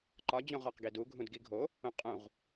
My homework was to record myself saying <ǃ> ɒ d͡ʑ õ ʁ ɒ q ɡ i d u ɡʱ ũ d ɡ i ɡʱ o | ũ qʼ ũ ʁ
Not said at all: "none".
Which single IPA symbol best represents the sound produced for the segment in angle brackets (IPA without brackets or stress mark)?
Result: ǃ